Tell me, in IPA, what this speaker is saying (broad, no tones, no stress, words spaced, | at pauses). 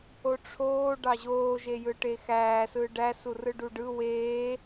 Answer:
oʈ͡ʂʰoː ɖɑʑoː ʒejɯʈexæː sɯːɖæ surɯɖuɖɯ weː